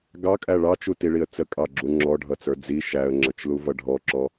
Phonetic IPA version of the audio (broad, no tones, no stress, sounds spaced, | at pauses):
ɡ ɑ kʼ æ ɭ ɑ t͡ʃ u t i ɭ i ə̯ t͡s ə kʼ ɑ ɡ͡ǁ u ŋ͡ǁ ɔ ɖʱ ʌ t͡s ə˞ d͡z i ʃ æ ə̯ ŋ͡ǁ ʌ t͡ʃ l u v ʌ ɖʱ ɔ ǁ ɔ